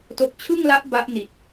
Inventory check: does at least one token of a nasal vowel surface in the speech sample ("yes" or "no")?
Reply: no